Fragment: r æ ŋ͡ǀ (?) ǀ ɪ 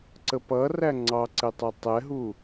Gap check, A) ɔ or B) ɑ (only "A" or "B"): B